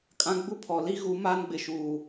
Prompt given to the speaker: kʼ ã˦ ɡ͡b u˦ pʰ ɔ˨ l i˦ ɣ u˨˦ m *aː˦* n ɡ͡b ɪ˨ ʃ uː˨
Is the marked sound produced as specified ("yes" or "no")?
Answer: yes